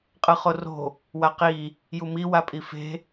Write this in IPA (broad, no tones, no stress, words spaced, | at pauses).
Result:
qʼɯχoro̤ | waqi | jumi wapʼife̤